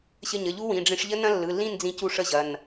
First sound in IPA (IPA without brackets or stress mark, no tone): ɕ